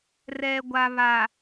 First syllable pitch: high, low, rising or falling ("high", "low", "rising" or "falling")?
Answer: low